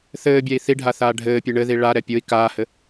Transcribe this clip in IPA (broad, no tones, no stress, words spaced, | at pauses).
θɘːbʲai̯ θiɖʱaθaː ɖʱɘːpʲe ɳɘði ɭaɾɛ pʲoi̯ kaːhɘ